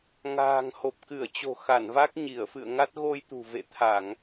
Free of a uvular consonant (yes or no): yes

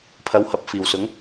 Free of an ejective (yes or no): yes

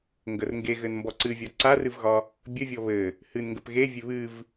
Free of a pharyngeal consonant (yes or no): yes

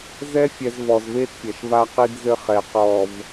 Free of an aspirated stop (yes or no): yes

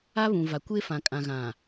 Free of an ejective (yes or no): no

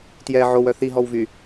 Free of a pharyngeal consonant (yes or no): no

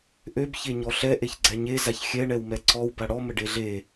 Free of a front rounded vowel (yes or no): no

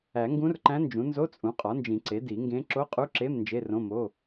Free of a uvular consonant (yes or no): no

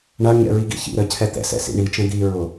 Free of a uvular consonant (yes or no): yes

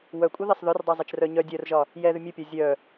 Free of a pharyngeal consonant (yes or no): yes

